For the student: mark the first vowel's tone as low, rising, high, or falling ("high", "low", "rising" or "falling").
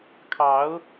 rising